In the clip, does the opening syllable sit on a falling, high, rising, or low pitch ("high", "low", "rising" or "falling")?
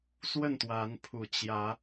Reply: falling